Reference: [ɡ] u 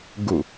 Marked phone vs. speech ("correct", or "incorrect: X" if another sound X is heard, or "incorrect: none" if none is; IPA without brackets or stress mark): correct